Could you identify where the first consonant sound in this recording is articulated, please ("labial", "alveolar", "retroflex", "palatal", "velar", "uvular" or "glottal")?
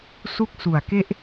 alveolar